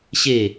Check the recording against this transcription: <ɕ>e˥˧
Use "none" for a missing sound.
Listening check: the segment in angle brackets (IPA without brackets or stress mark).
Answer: ɕ